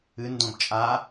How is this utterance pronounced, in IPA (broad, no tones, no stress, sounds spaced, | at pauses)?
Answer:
ɨ n d õ b t͡ʃʼ a